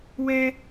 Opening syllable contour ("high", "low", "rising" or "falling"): high